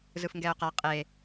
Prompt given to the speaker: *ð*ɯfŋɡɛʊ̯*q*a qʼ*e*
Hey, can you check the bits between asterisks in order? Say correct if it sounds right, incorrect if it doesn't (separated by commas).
incorrect, correct, correct